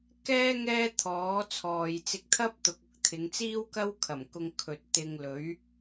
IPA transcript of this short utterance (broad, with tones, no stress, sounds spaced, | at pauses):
k ɛː˥ ŋ ɛː˥ t̪ʰ ɔː˨˥ t͡sʰ ɔː˨ j t͡s ɪ˧ k̚ t̪ʰ ɐ˥ p̚ t̪ ʊ˨ k̚ ʊ˧ k̚ t̪ʰ ɪ˨˧ ŋ t͡s iː˥ w k ɐ˥ w kʰ ɐ˨˩ m k ʊ˧ ŋ kʰ ɵ˧ t̚ t̪ ɪ˧ ŋ l ɵ˨˥ ɥ